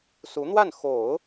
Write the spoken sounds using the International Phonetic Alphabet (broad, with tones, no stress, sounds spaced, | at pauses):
s u˧˥ n̪ w a˥˩ n x o˨˩˦ ʊ̯